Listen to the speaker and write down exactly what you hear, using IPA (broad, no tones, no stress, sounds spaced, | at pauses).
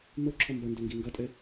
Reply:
m o ǁʰ ɔ m b ʌ n d o ŋ ɡ i ŋ ɡ ʌ tʼ ɘ